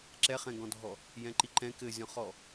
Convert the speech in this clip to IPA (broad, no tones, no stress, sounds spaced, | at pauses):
ǁ ɛ χ ɛ̃ ɡ ɔ̃ dʱ ɔ | j ɛ̃ ǃ i ǃ ɛ̃ k ɘ zʲ ɔ̃ χ ɔ